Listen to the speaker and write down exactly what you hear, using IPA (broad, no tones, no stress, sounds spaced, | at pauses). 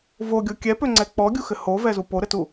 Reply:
v o ɡʲ o kʲ ɛ p ø ŋ͡ǀ ɛ k͡p ɔ ɡʲ u x ɘ h o v ɛ z u p o ɾ ɘ t u